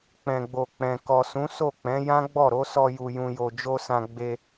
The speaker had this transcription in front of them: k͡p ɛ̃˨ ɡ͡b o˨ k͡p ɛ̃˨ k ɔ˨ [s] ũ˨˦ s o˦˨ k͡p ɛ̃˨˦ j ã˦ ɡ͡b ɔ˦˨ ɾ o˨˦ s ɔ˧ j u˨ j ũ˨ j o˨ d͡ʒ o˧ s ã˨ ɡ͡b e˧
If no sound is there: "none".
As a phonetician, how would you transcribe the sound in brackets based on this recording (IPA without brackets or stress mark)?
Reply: s